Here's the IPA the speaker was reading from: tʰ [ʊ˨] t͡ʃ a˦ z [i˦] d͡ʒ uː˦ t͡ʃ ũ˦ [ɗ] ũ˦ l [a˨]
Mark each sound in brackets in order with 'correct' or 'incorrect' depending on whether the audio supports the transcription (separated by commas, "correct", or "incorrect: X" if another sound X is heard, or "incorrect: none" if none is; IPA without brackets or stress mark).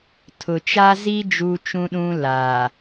correct, correct, correct, incorrect: aː˨